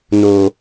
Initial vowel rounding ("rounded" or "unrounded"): rounded